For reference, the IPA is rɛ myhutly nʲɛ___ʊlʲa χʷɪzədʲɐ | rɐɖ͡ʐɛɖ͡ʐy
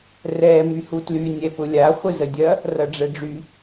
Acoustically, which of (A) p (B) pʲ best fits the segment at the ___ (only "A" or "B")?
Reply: A